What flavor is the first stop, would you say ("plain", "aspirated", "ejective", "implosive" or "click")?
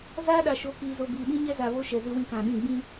implosive